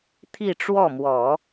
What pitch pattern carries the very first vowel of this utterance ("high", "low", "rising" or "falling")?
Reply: falling